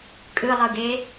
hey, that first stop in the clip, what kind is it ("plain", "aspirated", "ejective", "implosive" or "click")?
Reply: ejective